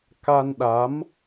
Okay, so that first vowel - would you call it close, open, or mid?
open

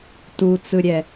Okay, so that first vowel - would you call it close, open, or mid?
close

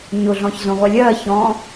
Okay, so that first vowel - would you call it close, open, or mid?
close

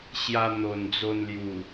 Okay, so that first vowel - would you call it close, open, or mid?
open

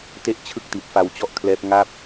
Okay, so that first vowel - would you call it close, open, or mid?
mid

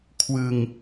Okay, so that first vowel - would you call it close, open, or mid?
close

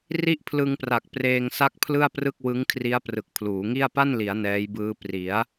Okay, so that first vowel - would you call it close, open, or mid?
close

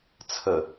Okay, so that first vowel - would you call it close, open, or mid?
mid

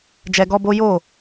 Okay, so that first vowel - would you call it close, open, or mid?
mid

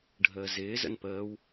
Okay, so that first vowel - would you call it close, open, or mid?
mid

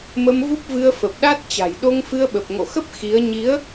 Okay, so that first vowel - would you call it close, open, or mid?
mid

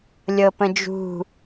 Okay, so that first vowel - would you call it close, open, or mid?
mid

